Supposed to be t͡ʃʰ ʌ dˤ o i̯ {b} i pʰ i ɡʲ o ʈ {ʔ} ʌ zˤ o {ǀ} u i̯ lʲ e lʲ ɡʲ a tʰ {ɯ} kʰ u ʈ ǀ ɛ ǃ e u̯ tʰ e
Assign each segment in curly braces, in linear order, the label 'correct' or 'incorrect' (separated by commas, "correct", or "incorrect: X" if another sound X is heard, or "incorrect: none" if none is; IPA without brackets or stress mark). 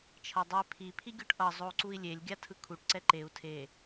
incorrect: pʰ, correct, correct, correct